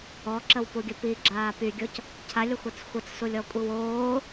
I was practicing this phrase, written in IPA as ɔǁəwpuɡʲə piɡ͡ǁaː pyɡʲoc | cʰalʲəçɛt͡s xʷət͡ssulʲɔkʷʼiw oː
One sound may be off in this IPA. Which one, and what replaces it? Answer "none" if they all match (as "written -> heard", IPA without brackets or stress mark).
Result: ç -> xʷ